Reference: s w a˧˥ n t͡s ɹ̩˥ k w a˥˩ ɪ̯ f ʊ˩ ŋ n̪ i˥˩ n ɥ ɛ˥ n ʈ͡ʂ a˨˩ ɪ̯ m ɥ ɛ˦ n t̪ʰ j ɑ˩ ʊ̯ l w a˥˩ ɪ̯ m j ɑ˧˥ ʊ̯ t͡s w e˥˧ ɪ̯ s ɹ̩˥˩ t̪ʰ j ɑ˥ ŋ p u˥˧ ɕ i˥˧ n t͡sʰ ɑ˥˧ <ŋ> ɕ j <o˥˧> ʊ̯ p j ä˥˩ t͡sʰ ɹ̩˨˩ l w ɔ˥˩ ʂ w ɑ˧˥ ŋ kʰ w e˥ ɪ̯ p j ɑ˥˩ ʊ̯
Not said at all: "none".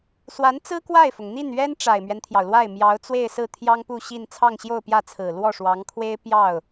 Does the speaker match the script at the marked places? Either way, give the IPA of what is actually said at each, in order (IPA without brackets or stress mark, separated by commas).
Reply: ŋ, o˥˧